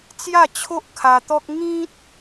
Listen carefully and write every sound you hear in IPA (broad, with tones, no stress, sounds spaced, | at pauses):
t͡s j a˥˧ t͡ɕʰ o˦ ʔ kʰ a˧ t̪ ɔ˦ k̚ ŋ ĩ˦ t̚